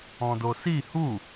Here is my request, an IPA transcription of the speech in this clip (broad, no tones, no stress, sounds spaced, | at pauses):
ɔ̃ d o s i h u